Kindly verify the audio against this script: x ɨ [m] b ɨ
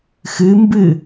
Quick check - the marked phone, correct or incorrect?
correct